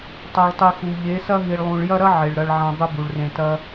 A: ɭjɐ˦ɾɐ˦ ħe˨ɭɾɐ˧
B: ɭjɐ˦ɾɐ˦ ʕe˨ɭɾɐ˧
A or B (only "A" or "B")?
B